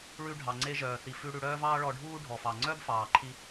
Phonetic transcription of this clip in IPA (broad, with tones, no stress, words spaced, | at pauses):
ɭʉ˧ ɖʱɑ˩ŋ͡ǀe˧ʒœː˩θi˩ fʉ˧ ɽʉ˧ɽœː˥vɑː˥ ɭɔ˧ɖʱuː˥ ɖʱɔ˩fɑ˩ ŋ͡ǀœ˥bfɑː˩ǃʰi˧